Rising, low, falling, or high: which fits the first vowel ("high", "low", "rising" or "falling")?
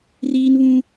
high